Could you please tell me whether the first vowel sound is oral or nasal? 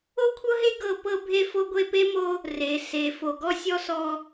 oral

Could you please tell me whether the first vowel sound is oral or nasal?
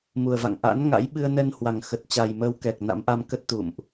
oral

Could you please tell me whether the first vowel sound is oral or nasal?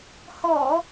oral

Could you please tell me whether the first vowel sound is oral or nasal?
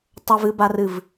oral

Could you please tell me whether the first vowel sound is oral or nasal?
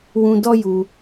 nasal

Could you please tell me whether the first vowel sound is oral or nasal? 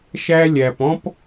oral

